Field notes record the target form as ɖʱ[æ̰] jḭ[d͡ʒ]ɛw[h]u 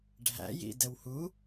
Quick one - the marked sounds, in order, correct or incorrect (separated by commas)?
correct, incorrect, correct